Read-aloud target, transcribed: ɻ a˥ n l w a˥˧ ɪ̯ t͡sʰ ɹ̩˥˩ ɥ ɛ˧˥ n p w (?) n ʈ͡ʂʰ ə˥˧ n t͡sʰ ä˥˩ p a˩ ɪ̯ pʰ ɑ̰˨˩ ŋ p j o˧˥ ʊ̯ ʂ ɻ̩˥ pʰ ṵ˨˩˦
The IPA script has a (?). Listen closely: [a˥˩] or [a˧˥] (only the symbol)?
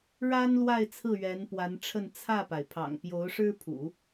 a˧˥